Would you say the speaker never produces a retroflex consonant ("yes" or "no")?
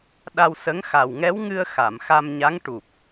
no